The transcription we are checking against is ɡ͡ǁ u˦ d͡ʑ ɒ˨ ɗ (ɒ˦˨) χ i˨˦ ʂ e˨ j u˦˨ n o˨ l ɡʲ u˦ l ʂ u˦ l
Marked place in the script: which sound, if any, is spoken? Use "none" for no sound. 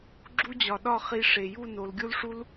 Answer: ɒ˦˨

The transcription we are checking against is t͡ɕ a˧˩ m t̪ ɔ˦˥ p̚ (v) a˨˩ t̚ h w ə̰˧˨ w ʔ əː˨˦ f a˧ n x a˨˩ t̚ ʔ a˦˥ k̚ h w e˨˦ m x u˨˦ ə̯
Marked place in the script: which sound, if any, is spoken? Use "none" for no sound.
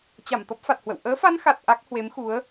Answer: f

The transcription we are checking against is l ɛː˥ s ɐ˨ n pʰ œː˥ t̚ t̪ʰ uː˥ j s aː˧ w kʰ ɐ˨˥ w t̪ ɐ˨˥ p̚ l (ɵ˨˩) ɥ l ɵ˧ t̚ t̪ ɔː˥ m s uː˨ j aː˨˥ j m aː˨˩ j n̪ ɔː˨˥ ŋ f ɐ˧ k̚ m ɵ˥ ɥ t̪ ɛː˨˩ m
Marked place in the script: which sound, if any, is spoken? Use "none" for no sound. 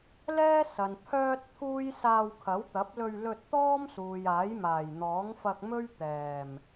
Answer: ɵ˧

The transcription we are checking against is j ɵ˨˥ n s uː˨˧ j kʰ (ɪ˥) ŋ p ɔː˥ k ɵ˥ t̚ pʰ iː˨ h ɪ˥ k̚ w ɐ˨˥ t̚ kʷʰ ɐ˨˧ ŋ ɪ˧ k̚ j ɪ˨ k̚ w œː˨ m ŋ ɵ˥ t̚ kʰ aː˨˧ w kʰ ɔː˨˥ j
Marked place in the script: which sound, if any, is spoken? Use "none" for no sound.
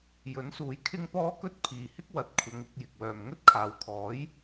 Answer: ɪ˥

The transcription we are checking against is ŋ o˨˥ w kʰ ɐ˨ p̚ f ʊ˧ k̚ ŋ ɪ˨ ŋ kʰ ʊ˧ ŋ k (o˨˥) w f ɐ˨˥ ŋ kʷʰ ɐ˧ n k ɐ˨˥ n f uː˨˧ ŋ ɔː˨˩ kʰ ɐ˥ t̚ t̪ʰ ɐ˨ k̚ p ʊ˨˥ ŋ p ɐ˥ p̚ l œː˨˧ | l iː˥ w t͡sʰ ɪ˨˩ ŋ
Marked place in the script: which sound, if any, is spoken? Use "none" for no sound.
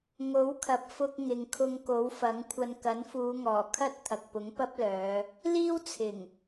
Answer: o˨˥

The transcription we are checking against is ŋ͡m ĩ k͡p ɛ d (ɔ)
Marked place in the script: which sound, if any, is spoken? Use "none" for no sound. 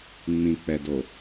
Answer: o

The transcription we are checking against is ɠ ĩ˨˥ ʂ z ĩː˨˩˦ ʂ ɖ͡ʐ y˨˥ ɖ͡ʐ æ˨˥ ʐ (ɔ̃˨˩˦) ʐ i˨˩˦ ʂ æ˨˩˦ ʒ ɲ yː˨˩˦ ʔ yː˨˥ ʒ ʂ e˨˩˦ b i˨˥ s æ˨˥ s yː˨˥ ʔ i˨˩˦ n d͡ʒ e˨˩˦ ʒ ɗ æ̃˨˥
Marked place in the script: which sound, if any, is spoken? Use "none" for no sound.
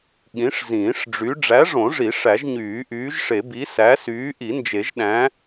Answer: õ˨˩˦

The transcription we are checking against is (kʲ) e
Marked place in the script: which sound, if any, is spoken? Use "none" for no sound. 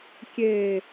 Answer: kʲ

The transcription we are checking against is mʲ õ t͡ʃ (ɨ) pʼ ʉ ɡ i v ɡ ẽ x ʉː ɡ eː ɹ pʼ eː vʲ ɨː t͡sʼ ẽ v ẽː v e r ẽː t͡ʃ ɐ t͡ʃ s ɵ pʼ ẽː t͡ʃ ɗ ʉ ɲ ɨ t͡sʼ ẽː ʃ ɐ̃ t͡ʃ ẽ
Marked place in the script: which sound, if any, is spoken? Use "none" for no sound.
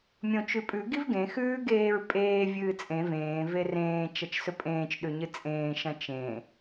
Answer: ʉ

